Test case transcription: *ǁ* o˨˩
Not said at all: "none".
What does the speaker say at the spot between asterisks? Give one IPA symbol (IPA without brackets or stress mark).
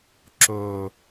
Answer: ǁ